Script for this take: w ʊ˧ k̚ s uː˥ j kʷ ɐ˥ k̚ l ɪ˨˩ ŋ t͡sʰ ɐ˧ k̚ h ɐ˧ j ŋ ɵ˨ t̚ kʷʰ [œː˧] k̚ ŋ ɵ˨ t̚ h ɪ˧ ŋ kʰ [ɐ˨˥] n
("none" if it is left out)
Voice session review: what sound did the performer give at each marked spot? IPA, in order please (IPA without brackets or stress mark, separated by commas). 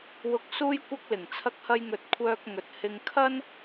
œː˧, ɐ˥